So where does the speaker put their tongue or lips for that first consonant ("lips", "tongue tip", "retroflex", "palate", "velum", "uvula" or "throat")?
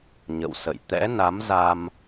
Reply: palate